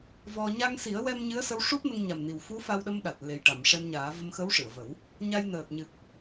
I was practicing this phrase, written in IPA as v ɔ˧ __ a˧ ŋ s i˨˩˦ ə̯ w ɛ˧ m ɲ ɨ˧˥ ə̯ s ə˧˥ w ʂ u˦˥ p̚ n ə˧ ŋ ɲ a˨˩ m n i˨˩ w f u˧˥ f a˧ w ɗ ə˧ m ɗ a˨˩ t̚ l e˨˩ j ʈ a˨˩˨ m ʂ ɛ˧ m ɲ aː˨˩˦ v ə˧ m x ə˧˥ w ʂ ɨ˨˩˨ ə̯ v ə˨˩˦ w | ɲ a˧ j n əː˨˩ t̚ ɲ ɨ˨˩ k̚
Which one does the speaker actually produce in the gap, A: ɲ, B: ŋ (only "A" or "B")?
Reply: A